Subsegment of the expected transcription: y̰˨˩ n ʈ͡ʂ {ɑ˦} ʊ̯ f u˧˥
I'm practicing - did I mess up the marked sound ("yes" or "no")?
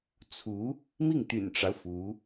no